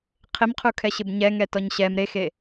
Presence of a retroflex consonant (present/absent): absent